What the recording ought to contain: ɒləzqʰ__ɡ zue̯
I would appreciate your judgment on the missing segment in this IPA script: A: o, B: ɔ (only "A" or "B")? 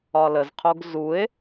A